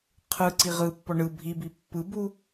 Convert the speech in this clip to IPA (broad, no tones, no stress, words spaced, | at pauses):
qʰɯǀi ʁɯpːɔ ɳɯ bʱibi pːɯbu